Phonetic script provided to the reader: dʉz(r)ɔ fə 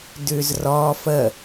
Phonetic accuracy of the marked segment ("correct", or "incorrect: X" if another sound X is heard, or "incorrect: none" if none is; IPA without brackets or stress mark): correct